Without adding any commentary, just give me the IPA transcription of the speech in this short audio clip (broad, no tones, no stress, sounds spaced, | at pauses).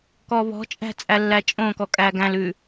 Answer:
k ɔ β ɔ̤ t͡ʃʼ æ̤ t͡sʼ æ lː æ t͡ʃʼ õ k ɔ kʼ æ ɡ æ̃ l ʉ